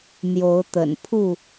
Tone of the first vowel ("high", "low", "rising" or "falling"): rising